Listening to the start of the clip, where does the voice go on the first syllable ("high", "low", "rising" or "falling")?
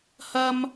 high